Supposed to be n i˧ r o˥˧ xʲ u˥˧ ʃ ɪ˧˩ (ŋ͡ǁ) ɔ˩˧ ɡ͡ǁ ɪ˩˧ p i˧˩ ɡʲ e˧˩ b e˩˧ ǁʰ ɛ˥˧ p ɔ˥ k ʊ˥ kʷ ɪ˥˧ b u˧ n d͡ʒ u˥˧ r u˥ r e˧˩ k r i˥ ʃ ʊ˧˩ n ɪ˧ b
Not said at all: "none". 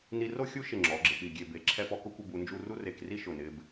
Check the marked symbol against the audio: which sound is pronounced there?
ŋ͡ǁ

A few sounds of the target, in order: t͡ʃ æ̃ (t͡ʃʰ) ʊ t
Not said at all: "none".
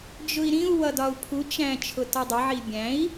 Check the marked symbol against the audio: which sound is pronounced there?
t͡ʃʰ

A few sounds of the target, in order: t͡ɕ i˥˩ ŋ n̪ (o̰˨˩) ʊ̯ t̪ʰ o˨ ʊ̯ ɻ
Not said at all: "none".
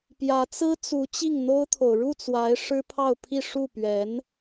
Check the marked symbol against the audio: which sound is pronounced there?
o˥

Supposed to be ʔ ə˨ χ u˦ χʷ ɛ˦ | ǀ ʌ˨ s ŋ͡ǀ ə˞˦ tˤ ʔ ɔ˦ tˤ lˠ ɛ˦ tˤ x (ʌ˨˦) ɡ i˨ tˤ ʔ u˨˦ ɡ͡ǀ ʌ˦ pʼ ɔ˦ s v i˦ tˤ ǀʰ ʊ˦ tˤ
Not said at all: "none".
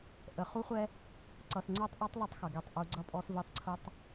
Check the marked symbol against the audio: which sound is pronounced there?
ʌ˨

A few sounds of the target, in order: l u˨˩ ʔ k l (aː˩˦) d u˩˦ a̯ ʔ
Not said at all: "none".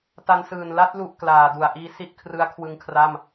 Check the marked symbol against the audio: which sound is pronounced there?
aː˩˦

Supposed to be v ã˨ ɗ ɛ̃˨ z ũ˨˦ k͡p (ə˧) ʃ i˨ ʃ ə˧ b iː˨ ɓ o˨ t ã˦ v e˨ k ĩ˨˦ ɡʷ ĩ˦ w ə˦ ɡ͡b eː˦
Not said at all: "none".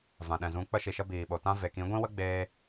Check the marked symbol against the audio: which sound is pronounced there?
ə˧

